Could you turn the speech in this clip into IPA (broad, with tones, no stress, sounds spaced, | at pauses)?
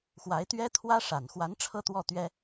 x w a˧˥ ɪ̯ t̪ ɥ ɛ˥ t̪ʰ w ä˥ ʂ a˨˩ n x w a˧˥ n ʈ͡ʂʰ ɤ˥ t̪ w ɔ˥˩ t̪ ɥ ɛ˥